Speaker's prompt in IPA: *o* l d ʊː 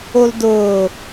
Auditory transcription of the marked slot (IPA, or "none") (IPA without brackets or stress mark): o